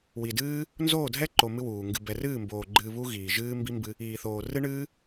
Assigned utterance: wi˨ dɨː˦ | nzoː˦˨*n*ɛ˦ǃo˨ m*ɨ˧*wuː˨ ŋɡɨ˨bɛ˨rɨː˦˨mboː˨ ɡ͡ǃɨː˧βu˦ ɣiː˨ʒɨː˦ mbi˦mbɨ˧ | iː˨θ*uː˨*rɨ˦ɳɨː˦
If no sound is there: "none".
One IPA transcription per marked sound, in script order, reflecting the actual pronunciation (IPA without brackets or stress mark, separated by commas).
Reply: dʱ, ɨ˦, oː˨